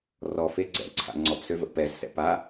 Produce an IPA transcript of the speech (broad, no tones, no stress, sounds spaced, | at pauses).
r ɔ f e ɡ͡ǀ ɛ̰ ǀʰ a̰ ŋ͡ǀ ɔ p s ø v ə̰ p ɛ z s ɛ̰ p a